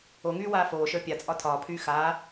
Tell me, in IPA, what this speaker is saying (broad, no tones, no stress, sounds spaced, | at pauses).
o ŋ yː w aː f oː ʃ ə˞ pʲ a t͡sʼ ɒ tʰ ɒː pʰ yː x aː